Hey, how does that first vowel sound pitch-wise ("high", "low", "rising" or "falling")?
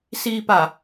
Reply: low